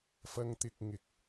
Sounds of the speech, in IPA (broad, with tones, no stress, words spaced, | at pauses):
fɐ˧ŋt̪ɪ˧k̚ŋɪ˨k̚